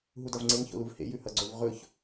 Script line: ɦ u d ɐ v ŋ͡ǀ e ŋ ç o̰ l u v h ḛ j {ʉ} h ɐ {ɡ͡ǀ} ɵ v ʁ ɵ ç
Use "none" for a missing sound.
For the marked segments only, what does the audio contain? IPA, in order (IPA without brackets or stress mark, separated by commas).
ʉ, ɡ͡ǀ